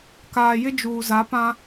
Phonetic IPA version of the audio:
k aː˨ j ɪ˦ d͡ʒ uː˨ z a˨˦ p ã˦

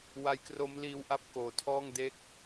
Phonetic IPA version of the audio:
w a˦˥ j k r o˦˥ m l iː˦˥ w ʔ a˥˩ p̚ k oː˨˩ tʰ ɔː˥˩ ŋ d e˦˥ k̚

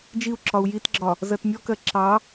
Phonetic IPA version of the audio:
d͡ʒ i u̯ ǁ ɒ u̯ j i t ɡ͡ǁ ɒ | z ɜ t mʲ ɔ k ɜ ǁ ɑ

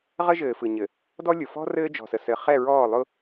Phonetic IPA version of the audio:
ʁ ə˦ ʒ ɘː˨ f ɯ˨ ɲ ɘ˨ | d ɔ˦ lʲ ʊ˨ f ɔ̤˦ r ɘː˦ d͡ʒ ɔ̤˨ s ə˨ s ɘ˨ χ ɛ˦˨ ɹ ɔː˦˨ lˠ ʊ˦

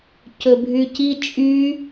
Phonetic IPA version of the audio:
c ɵ bʱ y c i t͡ʃʼ y

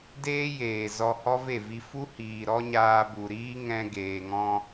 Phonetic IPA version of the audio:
d eː˦ j eː˨ z ɔ˧ h ɔ˦ v e˦˨ v i˧ f u˦ h iː˨ ɾ ɔ˦ ɲ aː˧ b u˨ ɾ iː˦ ŋ ɛ̃˧ ɡ eː˨ ŋ ɔ̃˧

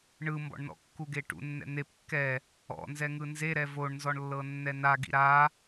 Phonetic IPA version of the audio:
ɳ ɯ m b ɔ̰ ɳ n ɔ̰ kː u ɡ e ʈ ṵ nː ɛ̰ n̪ e p kː ɛ | ɔ̰ n z ɛ ŋ ɯ n z e ɾ ɛ v o ɳ n z ɔ ɳ lː ɤ nː ɛ n a ɡ ḭ ɾ a

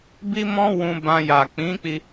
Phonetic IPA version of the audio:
b i˦ m ɔ̃˦ w ũ˧ b ã˧ j a˨ k͡p ĩ˨˦ k͡p i˧

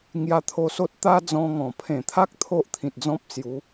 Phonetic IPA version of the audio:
ŋ j a˧ t̪ʰ o˧ s o˦ t̚ t̪ a˦ d͡z ɔ̃˧ ŋ ɔ̃˨˩ pʰ ẽ˨˩ t̪ʰ a˦ k̚ t̪ʰ o˦ ʔ t̪ʰ ĩ˨ t̚ d͡z ɔ̃˦ p̚ s j u˨˦

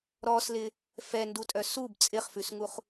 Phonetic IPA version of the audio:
ɾ ɔ s l ɪ | f ɛ n d u tʼ œ s u b t͡sʼ ɪ χ f ʉ s ŋ u χ

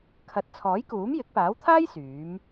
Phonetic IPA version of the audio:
kʰ ɐ˨˥ t̚ t͡sʰ ɔː˨˥ j k uː˨˥ m j ɪ˨˥ k̚ p aː˨˥ w t̪ʰ aː˥ j s yː˨˥ m

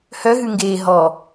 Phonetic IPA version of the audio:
h œ ɦ ʉ ŋ ɡ eː ɦ ɔ

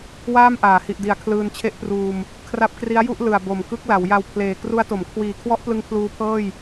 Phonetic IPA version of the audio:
w aː˥˩ m ʔ aː˩˦ h i˨˩ ʔ d i˩˦ a̯ kʰ l ɯː˧ n t͡ɕʰ e˥˩ ʔ p r uː˧ m | kʰ r a˦˥ p̚ k r i˦˥ a̯ j u˥˩ ʔ l ɯ˨˩ a̯ b o˨˩ m k ɯ˦˥ k̚ l a˩˦ w j a˧ w pʰ l eː˨˩ k r u˦˥ a̯ t o˩˦ m kʰ w iː˨˩ kʰ w ɔ˦˥ ʔ p l ɯ˧ ŋ pʰ l uː˦˥ pʰ ɤː˥˩ j

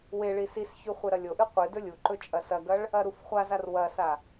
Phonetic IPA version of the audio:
w e ɭ i s i s ç ʉ χʷ e ɾ ɐ lʲ o ʔ ɨ qʷ ɨ d ɵ lʲ u ǃ ɵ t͡ʃʼ ɐ s ɐ ɡ ɐ ɭ | ɐ ɾ u f χʷ a z a r w ɐ s a

